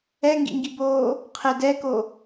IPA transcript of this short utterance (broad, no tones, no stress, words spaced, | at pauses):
ɛŋɡḭŋɡiboː | qʰɪ dɛko